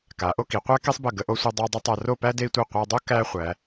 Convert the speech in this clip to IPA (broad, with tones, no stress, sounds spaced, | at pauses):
k a˩˧ ʔ o˥˧ k i˩˧ qʷ æ˥ k e˥ sˤ b ə˧˩ ɡ ə˧ ʔ o˧ sʷ a˧ dˤ a˧ u̯ dˤ ə˥ tˤ a˧ r o˥˧ p æ˥ d e˧ i̯ tʷ e˧˩ qʷ a˧ dˤ o˥ k æ˥ χʷ æ˩˧